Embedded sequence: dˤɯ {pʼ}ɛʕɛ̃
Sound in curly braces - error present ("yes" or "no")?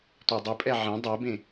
no